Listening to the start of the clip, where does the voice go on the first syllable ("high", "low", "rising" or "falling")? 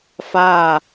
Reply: falling